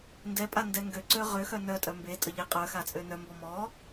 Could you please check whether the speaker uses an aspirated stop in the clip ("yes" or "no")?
no